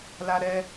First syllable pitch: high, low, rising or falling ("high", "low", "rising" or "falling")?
high